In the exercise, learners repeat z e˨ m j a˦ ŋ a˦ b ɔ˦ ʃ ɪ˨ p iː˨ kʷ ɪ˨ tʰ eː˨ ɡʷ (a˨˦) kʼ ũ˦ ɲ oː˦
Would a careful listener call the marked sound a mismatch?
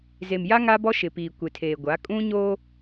no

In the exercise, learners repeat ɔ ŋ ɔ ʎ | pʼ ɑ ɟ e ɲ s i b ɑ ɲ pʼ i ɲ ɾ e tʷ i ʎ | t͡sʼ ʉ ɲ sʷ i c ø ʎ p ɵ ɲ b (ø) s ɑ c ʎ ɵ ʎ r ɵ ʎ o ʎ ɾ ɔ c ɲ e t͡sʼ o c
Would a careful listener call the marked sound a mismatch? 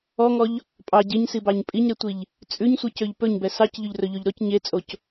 yes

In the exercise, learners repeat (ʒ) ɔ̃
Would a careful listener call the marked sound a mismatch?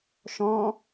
yes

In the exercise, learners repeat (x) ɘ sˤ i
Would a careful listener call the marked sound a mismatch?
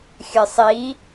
yes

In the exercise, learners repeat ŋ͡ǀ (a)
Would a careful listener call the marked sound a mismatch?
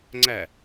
yes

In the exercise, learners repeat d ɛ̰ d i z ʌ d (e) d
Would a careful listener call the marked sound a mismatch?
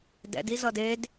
no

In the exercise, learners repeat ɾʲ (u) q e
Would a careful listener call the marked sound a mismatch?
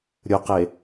yes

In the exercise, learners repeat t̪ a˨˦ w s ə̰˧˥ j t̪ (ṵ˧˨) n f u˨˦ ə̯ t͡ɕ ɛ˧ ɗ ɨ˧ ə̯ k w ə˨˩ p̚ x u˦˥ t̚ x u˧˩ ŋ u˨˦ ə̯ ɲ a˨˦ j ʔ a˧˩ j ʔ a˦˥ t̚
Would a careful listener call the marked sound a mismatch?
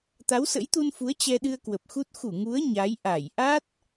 yes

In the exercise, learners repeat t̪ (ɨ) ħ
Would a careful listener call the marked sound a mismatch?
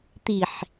yes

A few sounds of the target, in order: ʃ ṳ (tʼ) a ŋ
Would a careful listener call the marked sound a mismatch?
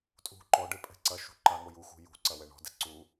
yes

